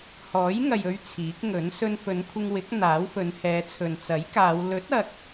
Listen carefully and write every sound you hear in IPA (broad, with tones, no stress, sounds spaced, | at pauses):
h ɔː˨˥ j ŋ ɐ˨ j ɵ˧ ɥ t͡sʰ iː˨˥ k̚ ŋ ɵ˨˥ n s ɵ˧ n f ɵ˨˧ n kʷʰ ɪ˧ ŋ w ɪ˨˥ k̚ n̪ aː˨˥ w f ɵ˨˧ n h ɛː˨˧ t͡sʰ ɵ˨ n t͡s ɐ˨˥ j k aː˨˧ w l ɵ˨˥ t̚ ɐ˨ k̚